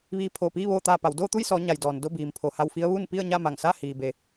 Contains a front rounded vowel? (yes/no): no